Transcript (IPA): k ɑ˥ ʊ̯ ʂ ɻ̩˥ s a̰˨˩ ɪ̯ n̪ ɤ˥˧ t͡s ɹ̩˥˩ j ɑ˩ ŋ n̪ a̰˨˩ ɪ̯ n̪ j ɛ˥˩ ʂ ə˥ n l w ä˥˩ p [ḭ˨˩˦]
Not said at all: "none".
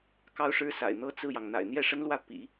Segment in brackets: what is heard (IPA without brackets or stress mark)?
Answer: ḭ˨˩˦